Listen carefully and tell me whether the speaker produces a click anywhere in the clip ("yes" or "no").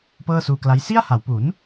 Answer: no